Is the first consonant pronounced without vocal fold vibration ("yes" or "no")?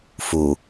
yes